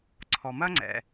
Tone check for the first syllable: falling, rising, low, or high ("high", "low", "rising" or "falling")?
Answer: low